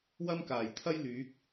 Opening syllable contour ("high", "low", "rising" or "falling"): high